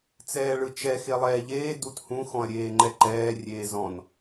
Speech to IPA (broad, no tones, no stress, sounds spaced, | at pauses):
t͡s ɛː ɭ ɯ t͡ʃ ɛ x e lˠ ɛː ʎ eː d u t h ũ x ɔ̃ ɐ̯ ɾʲ eː ŋ͡ǃ ɛ ǃ ɛː rʲ eː z ɔ̃ n